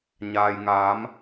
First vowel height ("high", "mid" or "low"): low